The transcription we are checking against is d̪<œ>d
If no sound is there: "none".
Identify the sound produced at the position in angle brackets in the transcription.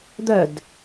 œ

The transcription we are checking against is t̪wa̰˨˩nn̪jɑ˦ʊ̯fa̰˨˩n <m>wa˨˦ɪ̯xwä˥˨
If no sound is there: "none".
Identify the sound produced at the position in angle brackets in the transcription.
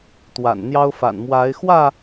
m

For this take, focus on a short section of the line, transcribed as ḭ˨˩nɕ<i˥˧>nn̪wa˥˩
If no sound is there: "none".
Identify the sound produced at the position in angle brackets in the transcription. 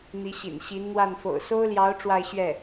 i˧˥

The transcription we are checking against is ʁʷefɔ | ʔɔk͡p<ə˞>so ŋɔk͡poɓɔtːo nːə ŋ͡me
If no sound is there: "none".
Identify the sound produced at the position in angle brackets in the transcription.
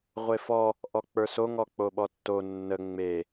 ə˞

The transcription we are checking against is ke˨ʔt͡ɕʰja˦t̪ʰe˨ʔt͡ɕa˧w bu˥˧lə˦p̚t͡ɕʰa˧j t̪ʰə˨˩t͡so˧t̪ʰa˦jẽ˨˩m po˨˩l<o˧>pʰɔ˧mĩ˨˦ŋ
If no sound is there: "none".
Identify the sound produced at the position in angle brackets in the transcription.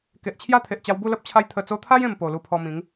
u˧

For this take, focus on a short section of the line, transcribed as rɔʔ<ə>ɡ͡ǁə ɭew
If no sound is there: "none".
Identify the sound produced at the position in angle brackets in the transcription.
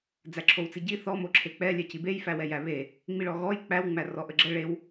ə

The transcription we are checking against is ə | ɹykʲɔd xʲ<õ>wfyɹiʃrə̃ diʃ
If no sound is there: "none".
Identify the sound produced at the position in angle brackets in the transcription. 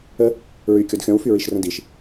ɔ̃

